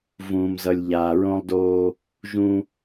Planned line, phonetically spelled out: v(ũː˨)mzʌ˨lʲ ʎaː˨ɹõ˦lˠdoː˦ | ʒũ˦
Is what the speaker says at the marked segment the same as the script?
yes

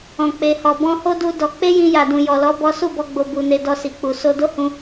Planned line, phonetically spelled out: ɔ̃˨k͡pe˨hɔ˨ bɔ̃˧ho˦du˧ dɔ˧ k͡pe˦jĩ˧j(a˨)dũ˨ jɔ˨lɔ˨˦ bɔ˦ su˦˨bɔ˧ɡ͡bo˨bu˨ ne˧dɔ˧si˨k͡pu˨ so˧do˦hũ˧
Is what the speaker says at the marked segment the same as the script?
yes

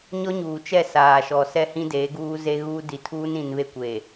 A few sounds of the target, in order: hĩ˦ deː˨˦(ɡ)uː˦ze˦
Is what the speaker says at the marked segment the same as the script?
yes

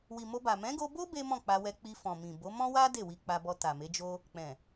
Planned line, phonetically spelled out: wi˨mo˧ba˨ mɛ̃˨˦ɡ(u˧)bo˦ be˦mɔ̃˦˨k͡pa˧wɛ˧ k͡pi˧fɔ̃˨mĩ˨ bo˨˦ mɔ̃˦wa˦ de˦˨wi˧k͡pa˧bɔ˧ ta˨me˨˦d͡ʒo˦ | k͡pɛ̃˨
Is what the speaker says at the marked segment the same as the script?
no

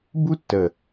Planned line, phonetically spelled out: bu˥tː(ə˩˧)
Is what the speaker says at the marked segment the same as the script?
no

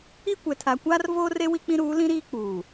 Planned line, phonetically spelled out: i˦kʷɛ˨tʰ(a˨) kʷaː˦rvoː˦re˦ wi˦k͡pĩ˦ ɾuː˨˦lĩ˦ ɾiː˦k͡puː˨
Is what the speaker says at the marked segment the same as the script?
yes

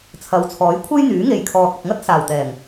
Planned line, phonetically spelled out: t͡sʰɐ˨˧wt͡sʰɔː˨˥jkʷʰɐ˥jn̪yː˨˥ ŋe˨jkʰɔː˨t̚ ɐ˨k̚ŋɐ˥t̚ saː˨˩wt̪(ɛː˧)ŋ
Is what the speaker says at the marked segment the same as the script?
no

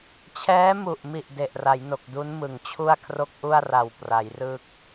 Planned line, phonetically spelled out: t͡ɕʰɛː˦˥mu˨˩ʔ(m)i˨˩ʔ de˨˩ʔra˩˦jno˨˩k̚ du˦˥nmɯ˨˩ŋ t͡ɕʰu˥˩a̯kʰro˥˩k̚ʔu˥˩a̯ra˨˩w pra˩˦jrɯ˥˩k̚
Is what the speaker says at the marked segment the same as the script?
yes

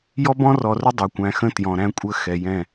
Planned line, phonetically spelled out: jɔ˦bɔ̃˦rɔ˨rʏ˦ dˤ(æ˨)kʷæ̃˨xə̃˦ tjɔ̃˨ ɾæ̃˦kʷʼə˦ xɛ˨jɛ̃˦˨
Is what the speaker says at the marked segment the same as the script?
yes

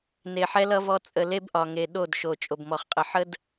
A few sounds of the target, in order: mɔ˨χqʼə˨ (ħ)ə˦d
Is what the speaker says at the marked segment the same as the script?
yes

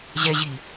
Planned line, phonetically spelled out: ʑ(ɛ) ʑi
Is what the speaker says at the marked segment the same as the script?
yes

